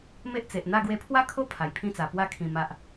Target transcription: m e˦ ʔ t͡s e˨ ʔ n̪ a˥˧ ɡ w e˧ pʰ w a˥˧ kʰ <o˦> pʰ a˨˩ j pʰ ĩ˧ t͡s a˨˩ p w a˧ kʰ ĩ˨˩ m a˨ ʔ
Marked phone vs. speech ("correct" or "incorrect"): correct